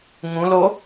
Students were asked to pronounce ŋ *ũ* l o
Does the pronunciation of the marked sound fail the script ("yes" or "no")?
no